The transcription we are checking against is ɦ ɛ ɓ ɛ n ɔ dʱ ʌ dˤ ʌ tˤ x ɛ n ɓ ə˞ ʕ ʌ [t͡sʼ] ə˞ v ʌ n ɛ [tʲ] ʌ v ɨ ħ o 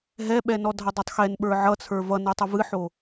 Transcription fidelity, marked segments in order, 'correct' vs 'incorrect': incorrect: t͡sʰ, incorrect: tˤ

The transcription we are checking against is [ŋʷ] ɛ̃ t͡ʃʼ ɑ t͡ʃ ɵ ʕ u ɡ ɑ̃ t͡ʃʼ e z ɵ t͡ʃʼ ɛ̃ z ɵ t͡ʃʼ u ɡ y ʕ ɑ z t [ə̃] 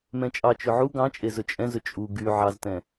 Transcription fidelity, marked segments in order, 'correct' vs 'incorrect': incorrect: m, incorrect: ɛ̃

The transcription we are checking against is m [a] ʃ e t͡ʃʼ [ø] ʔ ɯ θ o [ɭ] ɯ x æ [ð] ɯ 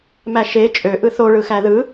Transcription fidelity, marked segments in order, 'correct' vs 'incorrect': incorrect: æ, correct, correct, correct

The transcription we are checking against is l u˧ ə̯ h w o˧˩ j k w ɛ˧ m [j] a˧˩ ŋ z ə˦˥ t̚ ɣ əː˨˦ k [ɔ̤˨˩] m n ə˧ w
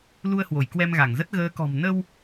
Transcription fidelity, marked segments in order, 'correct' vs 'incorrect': incorrect: ɣ, correct

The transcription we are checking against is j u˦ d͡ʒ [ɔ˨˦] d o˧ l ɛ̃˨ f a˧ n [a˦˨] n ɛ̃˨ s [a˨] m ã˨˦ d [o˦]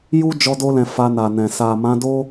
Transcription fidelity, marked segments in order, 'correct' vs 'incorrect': incorrect: ɔ˧, incorrect: a˨, correct, correct

